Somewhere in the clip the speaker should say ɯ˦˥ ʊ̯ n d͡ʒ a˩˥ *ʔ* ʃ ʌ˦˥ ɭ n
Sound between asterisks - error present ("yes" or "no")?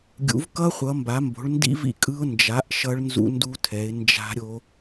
no